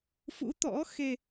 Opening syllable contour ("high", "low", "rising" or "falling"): rising